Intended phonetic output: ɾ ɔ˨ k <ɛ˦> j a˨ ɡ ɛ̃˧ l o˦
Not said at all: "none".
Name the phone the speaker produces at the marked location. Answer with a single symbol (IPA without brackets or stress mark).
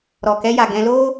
ɛ˧